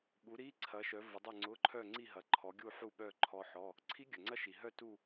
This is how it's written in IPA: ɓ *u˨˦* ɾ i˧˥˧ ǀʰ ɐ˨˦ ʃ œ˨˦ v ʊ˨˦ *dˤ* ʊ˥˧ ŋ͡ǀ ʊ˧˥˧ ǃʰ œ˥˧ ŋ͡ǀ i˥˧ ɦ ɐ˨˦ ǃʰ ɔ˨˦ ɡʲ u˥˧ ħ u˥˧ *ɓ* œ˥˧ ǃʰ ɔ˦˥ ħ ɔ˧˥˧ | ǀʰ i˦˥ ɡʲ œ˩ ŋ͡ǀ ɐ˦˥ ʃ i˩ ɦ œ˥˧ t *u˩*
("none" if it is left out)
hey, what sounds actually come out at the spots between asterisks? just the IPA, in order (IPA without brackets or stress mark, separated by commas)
u˨˦, dˤ, ɓ, u˥˧